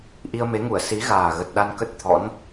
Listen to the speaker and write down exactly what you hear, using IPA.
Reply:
ʔi˧ə̯me˨˦ŋu˧˩ə̯ si˨˦ɣaː˨˩ɣə˨˩t̚ ɗa˧nkə˦˥t̚t̪ʰɔ̰˧˥n

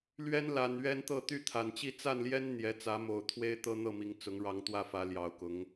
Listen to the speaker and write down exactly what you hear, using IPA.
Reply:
lɥɛ˦nla˨˩nɥɛ˦nt̪ɤ˥˨ t̪y˥˨t̪ʰa˨˩nt͡ɕi˥˨ t͡sa˥˨nljɛ˦n n̪jɛ˨˦t͡sä˨˦mo˨˩ʊ̯t̪ʰwe˦ɪ̯ t̪ɤ˦n̪ɤ˥˨mi˨˦ŋt͡sʊ˨˦ŋ ɻɑ˨˦ŋt̪wä˥˨fä˨˦ ljɑ˨˩ʊ̯kʊ˨˦ŋ

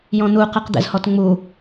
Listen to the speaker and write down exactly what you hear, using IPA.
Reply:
jɔ̃n̪uqɯq d̪ɛ̰zhɔtŋ͡mu

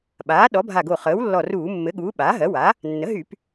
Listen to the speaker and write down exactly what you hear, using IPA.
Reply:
ɓaː˩˥ɗɔ˩˥bʱa˧˩ɡo˧˩ χəː˩˥wlːɔ˧˩ruː˧˩˧ mːɘ˩˥ɠuː˩˥ ɓaː˩˥ɦɜ˩˥wa˩˥ | nːə˩˥ɦy˧˩˧p

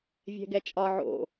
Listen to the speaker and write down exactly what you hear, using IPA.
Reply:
vʲɛ̤ɡɛt͡ʃʼɒ ʕo̰

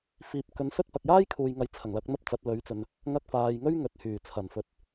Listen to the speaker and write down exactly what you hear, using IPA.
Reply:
fiː˨p̚kɵ˨˧nsɵ˥t̚ pɐ˨k̚jaː˥jkʰuː˨jŋɐ˨˥j t͡sʰɐ˨˩ŋlɐ˨˥k̚ n̪ɐ˥p̚t͡sɐ˨˥t̚ lɵ˨˥ɥt͡sɵ˨n | ŋɐ˥k̚faː˧j ŋɵ˥ɥŋɵ˨t̚hyː˨˩t͡sʰɐ˨˩n fɵ˨t̚

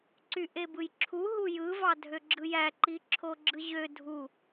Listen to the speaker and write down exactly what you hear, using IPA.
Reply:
ǀyʔebɯjǁʰu ɦujɯ vɑdʱøɡ͡ǁɯjæ ǃiǁʰoɡ͡ǁɯʑø dʱu

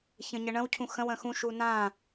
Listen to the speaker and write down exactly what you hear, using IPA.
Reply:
çə̃ɲəɳə̃w cʰũxə̃w ə̃xũ ʃunã

